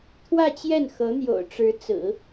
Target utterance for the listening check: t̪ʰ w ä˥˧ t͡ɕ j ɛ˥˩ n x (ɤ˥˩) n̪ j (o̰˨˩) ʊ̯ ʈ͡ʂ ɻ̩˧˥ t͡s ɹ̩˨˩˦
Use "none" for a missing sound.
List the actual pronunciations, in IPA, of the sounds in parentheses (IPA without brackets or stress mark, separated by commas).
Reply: ɤ˧˥, o̰˨˩